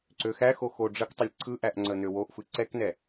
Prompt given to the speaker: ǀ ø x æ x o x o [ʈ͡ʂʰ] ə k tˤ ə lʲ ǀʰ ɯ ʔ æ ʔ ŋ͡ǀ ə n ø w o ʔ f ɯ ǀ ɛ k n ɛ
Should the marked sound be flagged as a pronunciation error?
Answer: yes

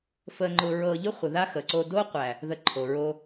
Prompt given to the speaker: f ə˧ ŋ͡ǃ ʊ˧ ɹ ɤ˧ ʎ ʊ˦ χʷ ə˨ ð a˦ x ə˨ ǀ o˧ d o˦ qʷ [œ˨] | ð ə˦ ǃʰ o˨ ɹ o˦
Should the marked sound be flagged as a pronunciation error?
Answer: yes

